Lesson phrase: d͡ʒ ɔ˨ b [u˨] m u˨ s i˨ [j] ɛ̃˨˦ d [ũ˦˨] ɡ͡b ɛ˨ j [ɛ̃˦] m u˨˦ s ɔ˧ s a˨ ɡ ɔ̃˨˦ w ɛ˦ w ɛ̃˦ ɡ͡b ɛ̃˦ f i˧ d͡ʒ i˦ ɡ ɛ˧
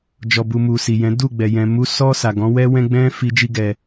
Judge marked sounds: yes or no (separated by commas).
yes, yes, no, no